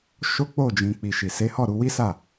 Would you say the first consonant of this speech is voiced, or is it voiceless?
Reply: voiceless